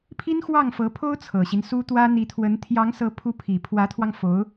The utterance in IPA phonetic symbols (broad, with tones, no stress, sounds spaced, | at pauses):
pʰ i˥ n x w ɑ˥˩ ŋ f ɤ˧˥ pʰ o˥ ʊ̯ t͡sʰ ɤ˨˩ ɕ i˦ n s u˥ t̪ w ä˥ n̪ i˧˥ t̪ʰ w ə˧˥ n t̪ʰ j ɑ˧˥ ŋ s ɤ˧˥ pʰ u˧˥ pʰ i˨˩ pʰ w ä˧˥ t̪ʰ w ɑ˧ ŋ f o˧˥ ʊ̯